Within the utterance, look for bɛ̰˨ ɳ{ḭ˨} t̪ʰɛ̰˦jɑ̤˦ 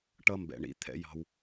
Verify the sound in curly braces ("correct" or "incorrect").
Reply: correct